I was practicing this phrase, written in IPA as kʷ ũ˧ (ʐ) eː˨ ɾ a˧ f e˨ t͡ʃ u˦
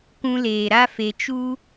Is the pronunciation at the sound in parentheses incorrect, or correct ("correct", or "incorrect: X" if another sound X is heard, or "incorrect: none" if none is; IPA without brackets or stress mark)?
incorrect: l